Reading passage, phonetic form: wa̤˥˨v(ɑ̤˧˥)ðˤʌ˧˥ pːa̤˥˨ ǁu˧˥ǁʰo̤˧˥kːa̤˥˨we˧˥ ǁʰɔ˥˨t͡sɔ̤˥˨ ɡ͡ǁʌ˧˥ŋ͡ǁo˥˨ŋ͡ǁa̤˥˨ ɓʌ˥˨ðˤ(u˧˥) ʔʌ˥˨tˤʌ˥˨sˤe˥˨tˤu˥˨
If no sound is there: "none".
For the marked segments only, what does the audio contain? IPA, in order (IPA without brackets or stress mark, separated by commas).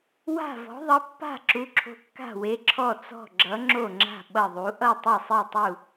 ɔ̤˧˥, u˧˥